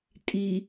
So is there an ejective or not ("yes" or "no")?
yes